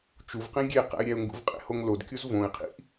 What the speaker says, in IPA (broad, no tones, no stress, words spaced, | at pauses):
t͡ʃuvqĩ ɡʲe qæ̰ɪ̯ɾʲæʊ̯ŋɡṵvqʼḛ hoŋlodkʲuz võɪ̯qʰḭʔ